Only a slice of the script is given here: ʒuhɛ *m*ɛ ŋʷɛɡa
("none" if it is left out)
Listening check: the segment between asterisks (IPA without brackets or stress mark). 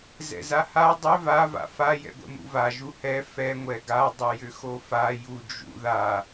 f